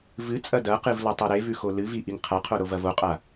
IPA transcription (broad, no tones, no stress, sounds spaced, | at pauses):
v ɨ t͡sʼ ɐ d ɐ q ɨ v l ɐ tˤ ɵ ɾ e v ʉ x o l ɨ v i ʔ i ŋ qʰ a qʰ o ɾ o v ɐ v o qʼ a